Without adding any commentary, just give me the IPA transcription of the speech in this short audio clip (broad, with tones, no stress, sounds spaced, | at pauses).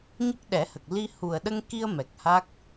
ɲ ə˦˥ k̚ ɗ ɛ˨˩˦ h ə˨˩ k̚ l i˧ h u˨˩ ə̯ ɗ ə˧ ŋ k i˧ ə̯ m ɛ˨˩ k̚ h a˦˥ k̚